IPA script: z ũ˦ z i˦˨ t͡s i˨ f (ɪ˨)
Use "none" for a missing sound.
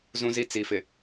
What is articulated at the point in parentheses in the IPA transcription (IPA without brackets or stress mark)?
ɪ˨